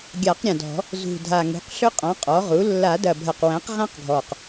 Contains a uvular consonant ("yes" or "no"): yes